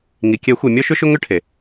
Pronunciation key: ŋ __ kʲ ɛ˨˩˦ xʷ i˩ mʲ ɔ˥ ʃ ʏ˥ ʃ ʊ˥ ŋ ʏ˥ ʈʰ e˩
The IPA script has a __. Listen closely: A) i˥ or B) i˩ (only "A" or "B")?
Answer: B